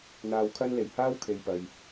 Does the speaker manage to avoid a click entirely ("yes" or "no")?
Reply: yes